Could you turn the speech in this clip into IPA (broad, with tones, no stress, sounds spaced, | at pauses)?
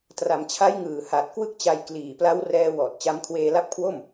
t r a˩˦ m t͡ɕʰ a˦˥ j ŋ ɯː˨˩ h a˨˩ t̚ k w ɯ˥˩ k̚ t͡ɕ a˧ j k l iː˨˩ p l a˦˥ w r ɛː˧ w ɔː˨˩ t̚ t͡ɕ a˧ m kʰ w eː˧ l a˦˥ p̚ kʰ w o˥˩ m